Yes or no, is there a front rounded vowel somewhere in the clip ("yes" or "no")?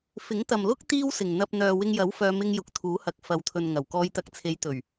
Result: yes